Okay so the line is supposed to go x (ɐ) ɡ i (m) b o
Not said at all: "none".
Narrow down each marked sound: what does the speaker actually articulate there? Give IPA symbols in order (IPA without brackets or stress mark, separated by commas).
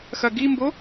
ɐ, m